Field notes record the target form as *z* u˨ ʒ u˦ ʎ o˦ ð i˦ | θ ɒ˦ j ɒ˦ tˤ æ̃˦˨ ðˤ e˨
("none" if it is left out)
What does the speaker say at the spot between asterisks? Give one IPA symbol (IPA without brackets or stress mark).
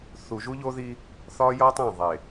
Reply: θ